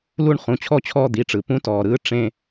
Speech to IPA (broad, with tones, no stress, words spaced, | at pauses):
lu˥˧ɳ χũ˩˧˩t͡ɕʰɔ˥˧t͡ɕʰɔː˥˧ d̪i˩˧˩ʈ͡ʂɯ˩ pũ˦˥tɔː˩ɾɯː˦˥ ʈ͡ʂẽ˥˧